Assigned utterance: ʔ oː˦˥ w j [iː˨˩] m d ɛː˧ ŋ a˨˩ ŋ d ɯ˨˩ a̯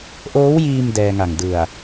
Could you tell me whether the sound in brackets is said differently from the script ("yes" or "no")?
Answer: yes